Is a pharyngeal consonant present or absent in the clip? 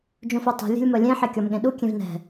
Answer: present